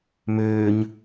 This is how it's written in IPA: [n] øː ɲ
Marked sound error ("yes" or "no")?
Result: yes